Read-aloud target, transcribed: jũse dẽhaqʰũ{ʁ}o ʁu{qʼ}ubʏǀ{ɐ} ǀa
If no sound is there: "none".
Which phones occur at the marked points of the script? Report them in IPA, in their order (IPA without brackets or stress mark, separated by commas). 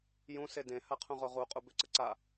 ʁ, qʼ, ə